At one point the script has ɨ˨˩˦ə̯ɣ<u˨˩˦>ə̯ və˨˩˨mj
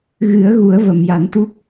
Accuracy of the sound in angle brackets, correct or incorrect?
correct